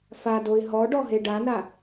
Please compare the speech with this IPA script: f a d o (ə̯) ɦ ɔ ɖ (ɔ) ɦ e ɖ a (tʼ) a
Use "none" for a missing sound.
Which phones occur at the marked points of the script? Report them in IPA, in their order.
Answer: ɪ̯, ɔ, n

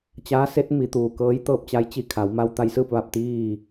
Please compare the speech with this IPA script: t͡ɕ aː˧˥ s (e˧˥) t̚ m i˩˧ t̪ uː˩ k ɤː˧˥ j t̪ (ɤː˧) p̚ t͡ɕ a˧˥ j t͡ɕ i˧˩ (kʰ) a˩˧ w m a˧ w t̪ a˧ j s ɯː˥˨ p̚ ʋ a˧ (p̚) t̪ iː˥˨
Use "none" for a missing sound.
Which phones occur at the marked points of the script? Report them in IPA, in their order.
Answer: e˧˥, ɤː˧, kʰ, p̚

